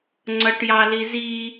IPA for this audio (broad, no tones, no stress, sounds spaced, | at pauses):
ŋ͡ǀ ʌ ʈ j ɑ l i z i